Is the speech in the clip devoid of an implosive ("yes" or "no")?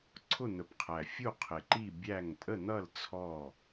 yes